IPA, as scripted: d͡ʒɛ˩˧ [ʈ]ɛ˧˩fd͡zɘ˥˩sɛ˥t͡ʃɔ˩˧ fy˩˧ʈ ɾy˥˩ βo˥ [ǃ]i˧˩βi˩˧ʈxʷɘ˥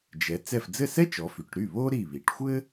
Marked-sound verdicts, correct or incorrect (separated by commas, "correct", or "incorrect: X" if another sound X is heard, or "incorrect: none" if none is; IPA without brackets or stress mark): incorrect: t͡s, incorrect: ɾ